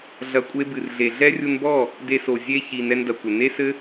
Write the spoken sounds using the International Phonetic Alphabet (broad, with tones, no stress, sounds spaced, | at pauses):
ɮ ɐ˧ kʷʼ e˦ b ɨ˨ r ɮ e˨ ɮ ɛ˦ rʲ u˧ n b ɔ˦˨ | d e˧ s o˨ zʲ e˧ ç i˨ n ɛ˧ n d ɐ˨ kʷ ɘ˨ n e˦ s ɘ˦